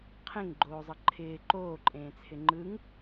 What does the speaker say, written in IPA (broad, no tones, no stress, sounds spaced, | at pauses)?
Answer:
qʰ ẽ ŋ ɡ͡ǃ oː zˤ ʌ ǃʰ ɪː ǃ oː ǃʼ ẽː t͡sʰ ɪ ŋ͡ǃ ɯ ŋ